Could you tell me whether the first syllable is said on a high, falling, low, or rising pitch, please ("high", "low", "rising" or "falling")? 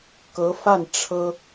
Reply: rising